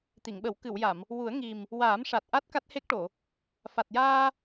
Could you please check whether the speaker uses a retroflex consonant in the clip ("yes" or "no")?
yes